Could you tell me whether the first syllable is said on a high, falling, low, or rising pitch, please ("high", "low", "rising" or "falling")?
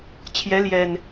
rising